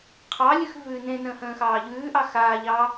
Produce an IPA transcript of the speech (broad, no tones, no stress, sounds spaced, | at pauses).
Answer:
qʰ ɑ lʲ ʉ x v ʉː n ẽ n ə̃ː h ə̃ː x ɑː ʎ ʉː ʔ ɑ x aː ʎ ɑ